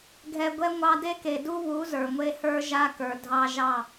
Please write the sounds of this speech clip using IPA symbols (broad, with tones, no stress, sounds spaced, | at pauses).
ɡʱ ɛ˧ ɡʷ ɛ˦ ŋʷ ɑ˦ d e˦ k e˨ d u˦ β u˨˦ z ə˞˨ ŋʷ e˦ h ə˞˦ ʒ a˦ k ə˞˨ dʱ ɑ˧ ʒ ɑ˦˨